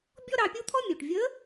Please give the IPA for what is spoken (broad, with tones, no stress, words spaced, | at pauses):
bʲɔ˥ɾɑ˧pʲu˥t̪ʰɔ˥ mʲu˩ʈvʲə˧˥